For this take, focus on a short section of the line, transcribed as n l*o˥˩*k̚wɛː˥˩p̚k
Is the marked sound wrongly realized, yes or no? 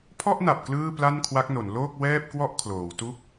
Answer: yes